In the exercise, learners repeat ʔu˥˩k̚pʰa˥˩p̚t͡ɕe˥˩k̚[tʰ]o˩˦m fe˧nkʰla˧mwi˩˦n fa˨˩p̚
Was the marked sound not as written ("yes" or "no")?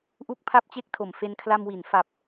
no